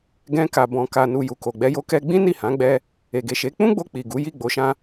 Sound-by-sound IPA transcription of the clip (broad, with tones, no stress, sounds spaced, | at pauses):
ɡ ɛ̃˧ k a˨ b ɔ̃˨ k a˨ n u˨ j u˨ k o˨ ɡ͡b ɛ˧ j o˧ k ɛ˧ ɡ͡b ĩ˦ n i˦˨ h ã˨˦ ɡ͡b ɛ˧ | e˨ ɡ e˨ ʃ e˨˦ k͡p ũ˦ ɡ͡b o˧ k͡p i˨ ɡ u˨˦ j i˦˨ ɡ͡b o˨˦ ʃ ã˧